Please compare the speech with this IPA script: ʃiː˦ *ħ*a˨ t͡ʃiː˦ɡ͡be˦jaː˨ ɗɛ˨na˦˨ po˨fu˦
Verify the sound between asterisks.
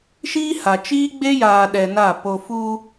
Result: incorrect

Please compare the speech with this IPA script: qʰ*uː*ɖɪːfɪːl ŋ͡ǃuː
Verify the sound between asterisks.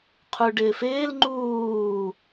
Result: incorrect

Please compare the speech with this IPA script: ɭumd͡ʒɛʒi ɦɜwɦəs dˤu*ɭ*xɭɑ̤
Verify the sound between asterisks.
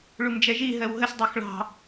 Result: incorrect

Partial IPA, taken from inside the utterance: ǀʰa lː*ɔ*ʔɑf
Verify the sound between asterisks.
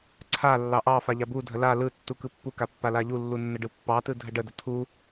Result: incorrect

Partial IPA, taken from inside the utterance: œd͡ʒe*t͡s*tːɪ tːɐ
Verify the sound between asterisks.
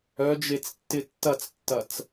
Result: correct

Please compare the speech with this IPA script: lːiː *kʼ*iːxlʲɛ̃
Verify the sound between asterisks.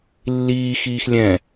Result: incorrect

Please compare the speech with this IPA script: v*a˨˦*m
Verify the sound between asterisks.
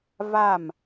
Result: incorrect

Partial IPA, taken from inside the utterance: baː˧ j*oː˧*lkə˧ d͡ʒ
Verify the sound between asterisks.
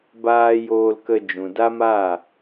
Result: correct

